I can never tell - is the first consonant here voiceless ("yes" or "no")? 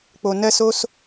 yes